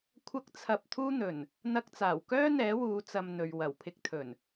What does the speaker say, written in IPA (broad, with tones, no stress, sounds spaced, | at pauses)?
kʷʰ ɐ˥ k̚ t͡sʰ ɐ˧ p̚ t̪ʰ uː˥ n̪ ɵ˨˩ n | n̪ ɐ˥ k̚ t͡s aː˨˩ w k œː˥ n̪ ɛː˨˥ w uː˨˧ t͡s ɐ˧ m n̪ ɵ˨ ɥ w ɐ˨˩ w pʰ ɪ˧ k̚ t̪ʰ ɵ˨˩ n